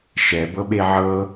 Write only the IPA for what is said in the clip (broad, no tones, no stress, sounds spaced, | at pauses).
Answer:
ʃ ɛ b ɤ ɓ e ʕ ɤ